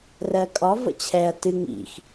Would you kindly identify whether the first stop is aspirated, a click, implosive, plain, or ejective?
ejective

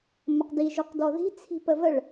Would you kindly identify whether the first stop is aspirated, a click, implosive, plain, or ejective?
plain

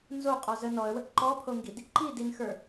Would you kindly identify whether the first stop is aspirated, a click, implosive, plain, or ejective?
ejective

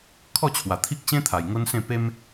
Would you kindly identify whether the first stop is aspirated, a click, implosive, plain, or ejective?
aspirated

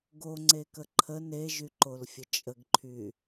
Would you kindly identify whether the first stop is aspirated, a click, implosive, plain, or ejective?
plain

